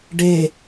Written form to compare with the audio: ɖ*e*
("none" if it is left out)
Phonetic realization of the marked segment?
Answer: e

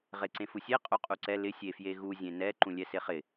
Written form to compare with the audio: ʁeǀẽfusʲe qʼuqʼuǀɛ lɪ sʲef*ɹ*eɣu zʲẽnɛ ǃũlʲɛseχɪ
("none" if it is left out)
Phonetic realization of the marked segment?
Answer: j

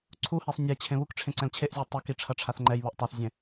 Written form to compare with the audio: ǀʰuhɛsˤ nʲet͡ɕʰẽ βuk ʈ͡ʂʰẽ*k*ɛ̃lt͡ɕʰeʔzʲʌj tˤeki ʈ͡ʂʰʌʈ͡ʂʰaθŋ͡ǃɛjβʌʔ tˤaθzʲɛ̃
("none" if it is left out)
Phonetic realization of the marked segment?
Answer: ǀ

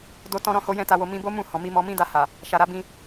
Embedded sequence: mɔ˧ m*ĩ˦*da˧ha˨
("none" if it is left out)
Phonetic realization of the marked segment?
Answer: ĩ˦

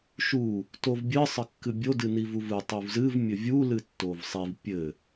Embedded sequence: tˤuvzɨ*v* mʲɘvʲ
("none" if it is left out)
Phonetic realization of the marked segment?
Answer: v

